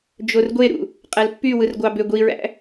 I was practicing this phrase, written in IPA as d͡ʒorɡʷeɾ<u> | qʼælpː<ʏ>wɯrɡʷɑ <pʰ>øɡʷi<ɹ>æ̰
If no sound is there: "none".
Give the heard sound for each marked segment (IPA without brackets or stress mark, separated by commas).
ṵ, y, b, ɹ